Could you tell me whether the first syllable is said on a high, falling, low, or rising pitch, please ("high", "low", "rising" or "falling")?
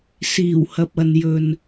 low